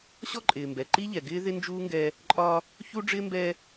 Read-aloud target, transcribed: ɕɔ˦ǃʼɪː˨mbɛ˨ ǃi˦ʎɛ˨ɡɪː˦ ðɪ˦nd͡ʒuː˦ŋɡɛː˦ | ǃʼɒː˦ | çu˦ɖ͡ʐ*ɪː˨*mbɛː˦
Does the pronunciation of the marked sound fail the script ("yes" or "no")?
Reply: yes